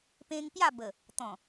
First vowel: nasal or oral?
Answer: nasal